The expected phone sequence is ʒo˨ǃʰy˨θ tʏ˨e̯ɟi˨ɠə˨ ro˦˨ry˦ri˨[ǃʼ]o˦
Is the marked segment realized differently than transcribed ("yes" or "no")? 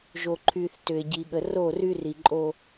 no